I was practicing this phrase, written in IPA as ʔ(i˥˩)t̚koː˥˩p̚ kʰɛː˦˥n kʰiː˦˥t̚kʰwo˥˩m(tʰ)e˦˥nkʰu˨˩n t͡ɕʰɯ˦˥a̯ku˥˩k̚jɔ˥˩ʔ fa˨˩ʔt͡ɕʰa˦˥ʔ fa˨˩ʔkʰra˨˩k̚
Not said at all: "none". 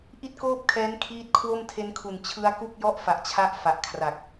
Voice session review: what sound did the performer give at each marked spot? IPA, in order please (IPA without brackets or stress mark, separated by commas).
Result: i˥˩, tʰ